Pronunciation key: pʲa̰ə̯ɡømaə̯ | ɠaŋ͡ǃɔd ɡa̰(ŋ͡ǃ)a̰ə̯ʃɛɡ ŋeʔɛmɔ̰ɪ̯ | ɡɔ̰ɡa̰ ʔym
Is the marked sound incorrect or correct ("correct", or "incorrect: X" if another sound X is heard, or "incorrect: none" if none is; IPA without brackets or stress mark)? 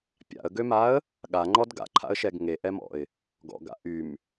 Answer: incorrect: ǃʰ